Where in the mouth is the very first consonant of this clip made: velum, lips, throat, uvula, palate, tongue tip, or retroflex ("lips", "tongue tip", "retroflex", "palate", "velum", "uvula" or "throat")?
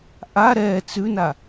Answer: throat